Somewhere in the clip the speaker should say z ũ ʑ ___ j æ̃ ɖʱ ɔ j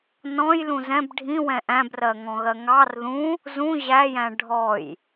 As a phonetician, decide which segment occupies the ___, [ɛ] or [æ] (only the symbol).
æ